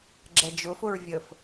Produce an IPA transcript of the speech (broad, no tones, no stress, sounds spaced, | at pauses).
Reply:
ɡ͡ǁ ɛ d͡ʒ ʊ f ʊ ɹ vʲ ə f